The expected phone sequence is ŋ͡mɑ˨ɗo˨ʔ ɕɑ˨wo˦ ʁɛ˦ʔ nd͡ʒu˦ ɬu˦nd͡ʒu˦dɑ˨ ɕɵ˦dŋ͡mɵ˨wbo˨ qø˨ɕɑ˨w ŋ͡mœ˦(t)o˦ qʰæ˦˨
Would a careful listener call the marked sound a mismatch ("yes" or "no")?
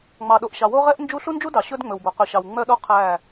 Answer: yes